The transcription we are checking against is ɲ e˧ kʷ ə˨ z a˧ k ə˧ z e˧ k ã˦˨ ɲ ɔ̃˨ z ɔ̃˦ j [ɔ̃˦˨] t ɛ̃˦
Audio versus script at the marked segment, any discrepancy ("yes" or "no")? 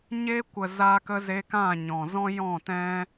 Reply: no